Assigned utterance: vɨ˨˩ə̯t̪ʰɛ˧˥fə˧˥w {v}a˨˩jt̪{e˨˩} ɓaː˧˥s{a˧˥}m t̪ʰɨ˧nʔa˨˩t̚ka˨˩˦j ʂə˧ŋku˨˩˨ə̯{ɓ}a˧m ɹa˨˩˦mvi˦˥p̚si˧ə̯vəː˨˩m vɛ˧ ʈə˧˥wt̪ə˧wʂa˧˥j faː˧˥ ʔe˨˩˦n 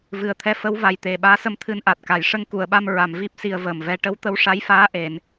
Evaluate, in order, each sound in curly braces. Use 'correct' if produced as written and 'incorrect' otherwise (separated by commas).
correct, correct, incorrect, correct